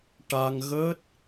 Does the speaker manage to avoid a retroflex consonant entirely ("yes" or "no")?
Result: no